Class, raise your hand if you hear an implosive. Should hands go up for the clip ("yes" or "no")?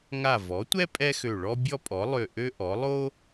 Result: no